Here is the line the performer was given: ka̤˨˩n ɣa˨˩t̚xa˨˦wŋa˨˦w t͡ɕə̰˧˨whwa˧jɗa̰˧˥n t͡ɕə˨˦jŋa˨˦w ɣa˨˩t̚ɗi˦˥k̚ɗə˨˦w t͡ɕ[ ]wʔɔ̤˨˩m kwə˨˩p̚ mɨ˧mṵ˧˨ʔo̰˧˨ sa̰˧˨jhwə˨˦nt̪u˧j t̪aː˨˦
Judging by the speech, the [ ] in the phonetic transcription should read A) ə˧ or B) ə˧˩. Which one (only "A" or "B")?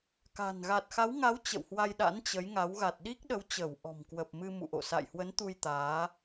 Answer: B